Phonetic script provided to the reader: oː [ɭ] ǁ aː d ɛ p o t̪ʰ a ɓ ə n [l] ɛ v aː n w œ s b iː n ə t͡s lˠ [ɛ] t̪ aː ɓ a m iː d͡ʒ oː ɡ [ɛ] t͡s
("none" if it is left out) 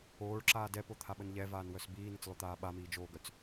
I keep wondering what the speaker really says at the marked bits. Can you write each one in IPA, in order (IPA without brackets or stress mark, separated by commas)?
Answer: ɭ, ʎ, ø, œ